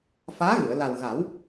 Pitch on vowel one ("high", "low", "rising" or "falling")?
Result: rising